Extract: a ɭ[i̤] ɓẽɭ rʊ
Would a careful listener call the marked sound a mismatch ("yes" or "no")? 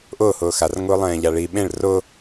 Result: yes